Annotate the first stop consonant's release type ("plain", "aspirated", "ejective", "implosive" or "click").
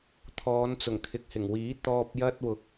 aspirated